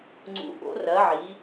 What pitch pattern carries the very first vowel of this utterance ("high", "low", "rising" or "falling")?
rising